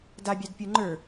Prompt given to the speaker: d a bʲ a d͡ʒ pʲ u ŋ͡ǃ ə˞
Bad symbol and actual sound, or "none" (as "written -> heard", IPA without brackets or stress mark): d͡ʒ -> d